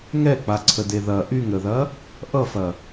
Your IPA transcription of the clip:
ŋɛk͡paǀʰəde ðɐ ʔyŋɾəðɐ | ʔʌfɐ

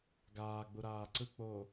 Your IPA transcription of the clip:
ɡaːɡ͡buɾaː ǀɯk͡poː

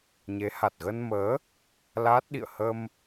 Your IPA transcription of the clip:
ɲe˨˦ha˨˩t̚ ɣə˧nməː˨˦ | laː˦˥t̚ɗḭ˧˨ə̯ hə˧m

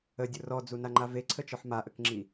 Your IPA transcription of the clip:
ədʲʊ rɔd͡zunaŋ͡ǃa veǀʰət͡ʃɔħ maʔəkŋ͡ǁi

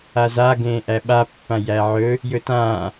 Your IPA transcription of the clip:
aza ɡẽːʔæɓa pːãjæʕɵ | jɵtãː

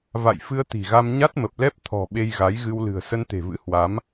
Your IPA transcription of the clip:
va̰˧˨jfɨ˧ə̯ t̪i̤˨˩ɣa˧m ɲa˦˥t̚mə˨˩p̚lɛ˦˥p̚ t̪ʰɔ̤˨˩ ɓe˧jɣa˨˦jɣɨ˧wlɨ̤˨˩ə̯ sə˧nt̪e̤˨˩vɨ̰˧˥ hwa˨˦m

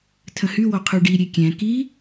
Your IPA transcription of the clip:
tʰə̃hywɔ qʰʉɖi ɾʲekʲɛ̃ ki

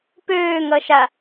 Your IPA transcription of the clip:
pøːŋʌʃa

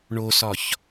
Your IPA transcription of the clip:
ɳosɒç

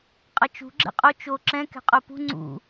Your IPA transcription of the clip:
qʼʌt͡ʃṳ ɡ͡ǁɛ̰qʼo t͡ʃo ǁɛ̃ kɛ̤qʼopṳ ŋ͡ǀṵ

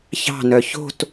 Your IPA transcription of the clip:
çɑ̤nœ ço̤t

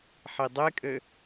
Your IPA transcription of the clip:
ħidˤekʼɘ

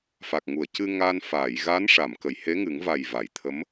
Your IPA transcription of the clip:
fa˨˩k̚ŋu˨˩˨ə̯ cɨ˧ŋa˧n faː˨˩˨jɣa˧˥n ʂa˨˩˨mkə˨˩˨j he˧˥ŋɨ˨˩˦ŋva˨˩j va˨˩˨jt̪ʰə˧˥m

